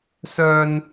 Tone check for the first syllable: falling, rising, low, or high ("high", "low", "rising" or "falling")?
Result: low